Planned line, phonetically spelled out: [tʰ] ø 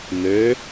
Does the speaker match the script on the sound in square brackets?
no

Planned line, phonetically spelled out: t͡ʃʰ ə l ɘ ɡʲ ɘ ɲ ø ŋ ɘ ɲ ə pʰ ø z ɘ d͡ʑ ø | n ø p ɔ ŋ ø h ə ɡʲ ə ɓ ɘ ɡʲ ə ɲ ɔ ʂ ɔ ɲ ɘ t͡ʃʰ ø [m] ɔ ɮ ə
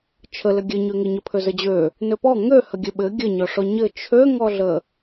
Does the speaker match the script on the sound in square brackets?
no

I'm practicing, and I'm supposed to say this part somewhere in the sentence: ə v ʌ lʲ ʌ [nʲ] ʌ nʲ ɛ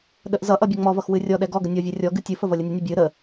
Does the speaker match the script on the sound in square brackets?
yes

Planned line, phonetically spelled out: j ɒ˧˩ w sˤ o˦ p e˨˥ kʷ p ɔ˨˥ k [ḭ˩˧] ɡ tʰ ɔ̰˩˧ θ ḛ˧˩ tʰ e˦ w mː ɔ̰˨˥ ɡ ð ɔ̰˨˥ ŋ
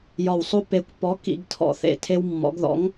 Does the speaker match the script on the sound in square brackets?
yes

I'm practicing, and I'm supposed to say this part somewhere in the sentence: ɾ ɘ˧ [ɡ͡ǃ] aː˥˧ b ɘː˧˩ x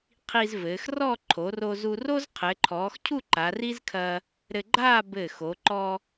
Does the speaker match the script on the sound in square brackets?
yes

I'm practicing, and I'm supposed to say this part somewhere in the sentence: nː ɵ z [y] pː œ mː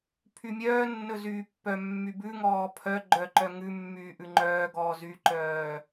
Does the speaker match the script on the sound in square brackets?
no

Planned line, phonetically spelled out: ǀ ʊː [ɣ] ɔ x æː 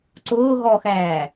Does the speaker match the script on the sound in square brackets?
yes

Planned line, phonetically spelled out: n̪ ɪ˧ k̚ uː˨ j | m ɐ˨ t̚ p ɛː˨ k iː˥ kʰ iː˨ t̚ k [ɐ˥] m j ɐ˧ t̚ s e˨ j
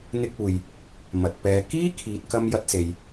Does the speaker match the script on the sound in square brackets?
no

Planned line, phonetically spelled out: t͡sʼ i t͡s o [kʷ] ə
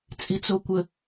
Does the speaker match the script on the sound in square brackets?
yes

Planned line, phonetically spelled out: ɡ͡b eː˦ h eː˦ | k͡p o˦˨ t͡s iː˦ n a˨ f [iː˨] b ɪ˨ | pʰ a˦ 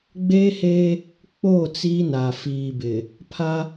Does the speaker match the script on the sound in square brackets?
yes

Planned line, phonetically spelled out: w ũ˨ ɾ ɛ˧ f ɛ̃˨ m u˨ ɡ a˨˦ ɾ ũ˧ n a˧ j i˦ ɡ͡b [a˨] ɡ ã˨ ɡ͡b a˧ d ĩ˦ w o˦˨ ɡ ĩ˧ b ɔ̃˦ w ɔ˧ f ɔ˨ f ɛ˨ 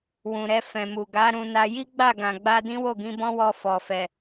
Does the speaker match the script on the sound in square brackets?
no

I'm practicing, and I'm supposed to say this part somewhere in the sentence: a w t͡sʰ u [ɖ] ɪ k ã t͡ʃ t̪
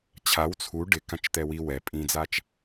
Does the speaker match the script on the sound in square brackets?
yes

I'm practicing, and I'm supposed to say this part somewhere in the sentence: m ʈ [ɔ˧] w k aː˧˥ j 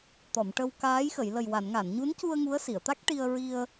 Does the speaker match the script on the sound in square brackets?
no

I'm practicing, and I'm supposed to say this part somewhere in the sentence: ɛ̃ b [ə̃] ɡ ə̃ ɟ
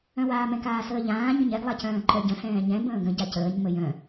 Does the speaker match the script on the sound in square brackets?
no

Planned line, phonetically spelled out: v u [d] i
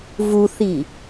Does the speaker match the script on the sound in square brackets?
no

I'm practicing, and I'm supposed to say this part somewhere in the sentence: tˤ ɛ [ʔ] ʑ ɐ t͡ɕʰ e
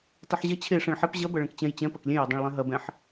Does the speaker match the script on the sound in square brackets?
no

